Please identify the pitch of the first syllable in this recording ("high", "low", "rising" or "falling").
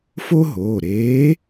high